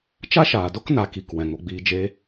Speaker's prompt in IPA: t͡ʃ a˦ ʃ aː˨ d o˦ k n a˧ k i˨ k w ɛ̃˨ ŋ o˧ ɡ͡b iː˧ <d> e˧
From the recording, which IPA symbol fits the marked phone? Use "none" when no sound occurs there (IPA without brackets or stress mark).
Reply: d͡ʒ